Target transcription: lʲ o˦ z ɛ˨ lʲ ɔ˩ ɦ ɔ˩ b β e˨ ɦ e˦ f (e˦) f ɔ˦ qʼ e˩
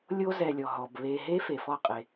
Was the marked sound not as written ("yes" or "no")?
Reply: yes